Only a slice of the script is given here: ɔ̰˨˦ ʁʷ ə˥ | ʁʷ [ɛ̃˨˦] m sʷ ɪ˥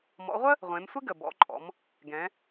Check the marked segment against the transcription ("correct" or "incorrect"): incorrect